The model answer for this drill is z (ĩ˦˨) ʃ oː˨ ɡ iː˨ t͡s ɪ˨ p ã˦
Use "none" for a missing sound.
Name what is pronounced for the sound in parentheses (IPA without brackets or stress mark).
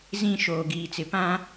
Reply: ĩ˦˨